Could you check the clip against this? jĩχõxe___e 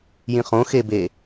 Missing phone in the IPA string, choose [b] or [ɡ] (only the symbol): b